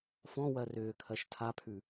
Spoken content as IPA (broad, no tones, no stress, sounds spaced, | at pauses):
f ɔ̃ w ɜ r ʏː kʰ ɜ ʃ tʰ a pʰ ʉ